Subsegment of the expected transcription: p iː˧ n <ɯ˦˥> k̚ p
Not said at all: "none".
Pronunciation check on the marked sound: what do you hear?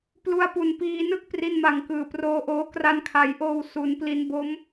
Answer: ɯ˥˩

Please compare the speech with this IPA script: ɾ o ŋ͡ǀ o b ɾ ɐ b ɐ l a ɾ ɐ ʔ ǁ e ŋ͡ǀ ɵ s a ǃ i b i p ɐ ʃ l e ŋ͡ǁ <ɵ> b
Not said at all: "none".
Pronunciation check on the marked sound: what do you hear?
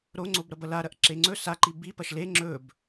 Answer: ɵ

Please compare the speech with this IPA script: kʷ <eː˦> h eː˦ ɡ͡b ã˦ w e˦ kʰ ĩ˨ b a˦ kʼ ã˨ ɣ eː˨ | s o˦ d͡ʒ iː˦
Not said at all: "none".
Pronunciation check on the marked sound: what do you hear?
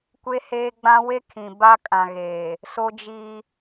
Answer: e˦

